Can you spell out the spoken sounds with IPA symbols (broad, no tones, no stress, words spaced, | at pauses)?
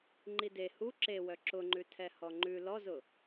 ŋ͡ǃide hu ǁewœ ǁʊŋ͡ǃʉ tʰɛhɔŋ͡ǃʉ lɔzʊ